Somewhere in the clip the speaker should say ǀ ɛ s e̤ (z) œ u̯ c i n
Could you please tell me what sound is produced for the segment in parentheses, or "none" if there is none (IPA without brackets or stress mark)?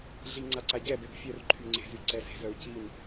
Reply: z